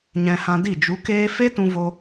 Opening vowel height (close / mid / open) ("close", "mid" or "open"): mid